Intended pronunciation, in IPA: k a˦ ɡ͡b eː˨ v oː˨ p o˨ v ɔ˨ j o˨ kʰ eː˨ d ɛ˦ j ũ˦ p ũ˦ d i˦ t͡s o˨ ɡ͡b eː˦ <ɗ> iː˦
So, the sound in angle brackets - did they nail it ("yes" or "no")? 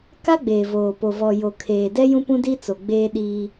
yes